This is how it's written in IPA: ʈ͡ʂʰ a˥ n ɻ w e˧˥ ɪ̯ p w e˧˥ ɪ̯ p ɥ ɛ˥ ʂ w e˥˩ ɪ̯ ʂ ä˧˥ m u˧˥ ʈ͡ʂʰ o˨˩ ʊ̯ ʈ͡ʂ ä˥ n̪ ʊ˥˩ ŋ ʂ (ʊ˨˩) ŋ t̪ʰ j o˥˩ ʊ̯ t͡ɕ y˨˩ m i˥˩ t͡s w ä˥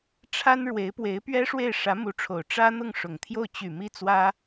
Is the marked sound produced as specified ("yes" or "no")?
yes